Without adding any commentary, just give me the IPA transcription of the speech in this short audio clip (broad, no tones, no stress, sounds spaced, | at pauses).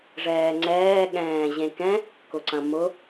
ʐ ɛː ŋ͡ǀ ɛː ɠ ɛ̃ː ʑ ẽ k ɛ̃ | k ʊ ǀ ɐ̃ m ʊ